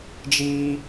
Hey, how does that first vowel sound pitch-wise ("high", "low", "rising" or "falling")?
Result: high